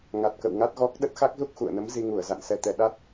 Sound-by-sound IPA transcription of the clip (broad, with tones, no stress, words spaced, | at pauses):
ŋa˨˩t̚kə̰˧˨wŋa˦˥t̚ɣɔ˦˥k̚ ɗə˦˥t̚xa˦˥k̚zu˦˥k̚ xṵ˧˨ə̯nə˨˦m zi˧ŋu˧˩ə̯za̰˧˨n sɛ˨˩t̪ɛ˨˩ ɗa˦˥t̚